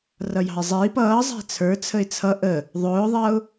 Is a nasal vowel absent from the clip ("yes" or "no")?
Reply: yes